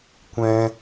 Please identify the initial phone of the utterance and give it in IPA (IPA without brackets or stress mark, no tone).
kʷ